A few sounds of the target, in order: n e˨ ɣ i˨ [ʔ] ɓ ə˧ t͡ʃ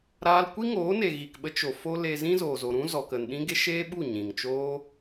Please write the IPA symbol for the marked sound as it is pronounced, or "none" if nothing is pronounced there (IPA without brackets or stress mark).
k